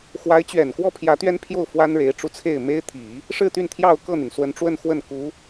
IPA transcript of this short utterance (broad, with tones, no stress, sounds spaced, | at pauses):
x w a˧˥ ɪ̯ t͡ɕ ɥ ɛ˨˩ n k w ɔ˥˩ pʰ j ä˧˥ t̪ ɥ ɛ˥ n pʰ j o˥˩ ʊ̯ f w a˥ n ɻ e˧˥ ɪ̯ ʈ͡ʂ u˧ t͡sʰ e˥˩ ɪ̯ m e˥ ɪ̯ t̪ʰ i˨˩˦ | ʂ ɻ̩˥˧ t̪ y˥˧ n t̪ʰ j ɑ˥˧ ʊ̯ k ɤ˥˩ n̪ y˩ n s w ə˧˥ n ʈ͡ʂ w ə˥˧ n x w ə˥˩ n k u˧˥